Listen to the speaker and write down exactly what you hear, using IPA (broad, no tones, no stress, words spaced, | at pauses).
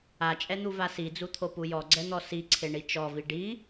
at͡ʃʼɛn̪uva sid͡zut̪ʰopu jɔɡ͡ǀɛn̪ɔ siǀʰeɳi t͡ʃɔvi ɖi